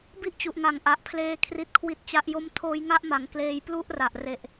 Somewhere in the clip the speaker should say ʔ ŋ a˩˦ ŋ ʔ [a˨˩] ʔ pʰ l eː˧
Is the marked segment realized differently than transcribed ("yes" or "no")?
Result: no